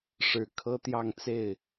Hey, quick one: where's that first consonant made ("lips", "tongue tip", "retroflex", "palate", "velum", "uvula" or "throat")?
retroflex